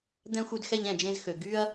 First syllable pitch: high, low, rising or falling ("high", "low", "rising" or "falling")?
high